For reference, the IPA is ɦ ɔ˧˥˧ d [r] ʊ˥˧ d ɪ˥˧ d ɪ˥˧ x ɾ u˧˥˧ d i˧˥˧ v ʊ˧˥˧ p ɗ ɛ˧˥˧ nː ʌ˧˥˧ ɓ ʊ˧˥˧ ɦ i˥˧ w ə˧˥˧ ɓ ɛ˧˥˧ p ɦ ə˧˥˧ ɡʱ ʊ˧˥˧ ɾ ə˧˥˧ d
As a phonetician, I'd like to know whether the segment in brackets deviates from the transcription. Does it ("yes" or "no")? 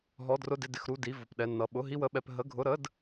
no